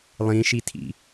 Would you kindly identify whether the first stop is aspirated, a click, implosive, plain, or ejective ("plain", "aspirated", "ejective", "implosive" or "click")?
aspirated